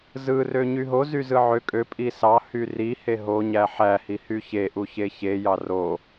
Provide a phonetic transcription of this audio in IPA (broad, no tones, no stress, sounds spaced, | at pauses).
z ɯ r ø ɲ y ɦ o z y z ɯ ʕ ø kʼ ø pʼ i s ɑ h y r i h e ɦ o ɲ æ ħ æ h i h y ç e ʔ u ç e ç e j ɑ r o